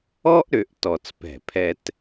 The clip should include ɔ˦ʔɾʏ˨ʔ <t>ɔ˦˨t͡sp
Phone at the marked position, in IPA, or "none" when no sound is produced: t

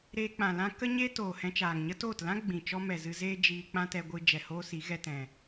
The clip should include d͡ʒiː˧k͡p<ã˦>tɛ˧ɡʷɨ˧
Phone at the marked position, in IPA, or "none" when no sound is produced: ã˦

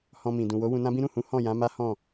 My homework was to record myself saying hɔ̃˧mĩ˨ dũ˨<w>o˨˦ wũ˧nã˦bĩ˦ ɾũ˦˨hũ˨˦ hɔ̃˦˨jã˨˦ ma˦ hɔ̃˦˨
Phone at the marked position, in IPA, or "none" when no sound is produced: w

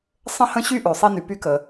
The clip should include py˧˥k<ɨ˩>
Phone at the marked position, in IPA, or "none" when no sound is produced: ə˩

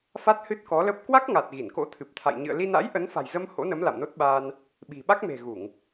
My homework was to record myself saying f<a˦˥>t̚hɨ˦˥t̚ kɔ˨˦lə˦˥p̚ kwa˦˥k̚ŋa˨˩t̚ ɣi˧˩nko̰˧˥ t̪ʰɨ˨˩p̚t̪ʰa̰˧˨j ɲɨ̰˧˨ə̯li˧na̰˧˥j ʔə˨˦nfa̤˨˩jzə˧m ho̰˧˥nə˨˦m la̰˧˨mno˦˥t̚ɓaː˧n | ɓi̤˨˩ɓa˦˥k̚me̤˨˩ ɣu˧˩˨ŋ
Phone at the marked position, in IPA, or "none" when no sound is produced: a˦˥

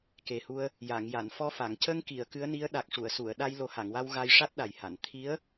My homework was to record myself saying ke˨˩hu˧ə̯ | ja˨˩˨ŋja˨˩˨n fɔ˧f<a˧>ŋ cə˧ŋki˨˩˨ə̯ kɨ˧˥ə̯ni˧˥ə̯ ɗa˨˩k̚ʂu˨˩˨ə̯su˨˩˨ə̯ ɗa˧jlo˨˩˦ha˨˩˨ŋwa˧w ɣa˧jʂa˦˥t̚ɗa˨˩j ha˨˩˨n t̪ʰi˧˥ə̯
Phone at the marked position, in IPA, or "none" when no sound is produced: a˨˩˨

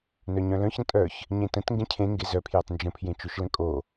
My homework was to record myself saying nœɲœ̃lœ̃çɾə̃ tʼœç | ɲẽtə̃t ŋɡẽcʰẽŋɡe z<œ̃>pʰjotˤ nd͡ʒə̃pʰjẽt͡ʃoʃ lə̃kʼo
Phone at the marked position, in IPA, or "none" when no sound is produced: œ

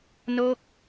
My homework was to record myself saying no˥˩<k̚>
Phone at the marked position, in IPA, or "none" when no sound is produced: k̚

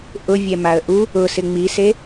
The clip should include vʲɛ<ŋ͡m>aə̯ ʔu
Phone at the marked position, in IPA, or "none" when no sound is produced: m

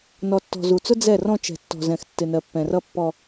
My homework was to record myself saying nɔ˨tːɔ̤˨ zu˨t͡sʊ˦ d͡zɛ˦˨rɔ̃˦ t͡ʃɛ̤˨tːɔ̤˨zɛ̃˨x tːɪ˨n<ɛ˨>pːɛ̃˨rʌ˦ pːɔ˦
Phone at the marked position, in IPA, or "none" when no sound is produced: ɜ˨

